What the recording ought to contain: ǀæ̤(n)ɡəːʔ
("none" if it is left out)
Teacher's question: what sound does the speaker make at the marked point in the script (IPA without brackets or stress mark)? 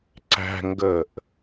ŋ